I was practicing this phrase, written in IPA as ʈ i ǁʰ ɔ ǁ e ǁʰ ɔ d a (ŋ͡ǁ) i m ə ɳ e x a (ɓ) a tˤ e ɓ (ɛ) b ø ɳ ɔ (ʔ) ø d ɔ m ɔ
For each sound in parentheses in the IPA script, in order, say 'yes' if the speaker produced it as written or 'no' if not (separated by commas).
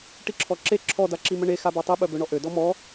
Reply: no, no, no, yes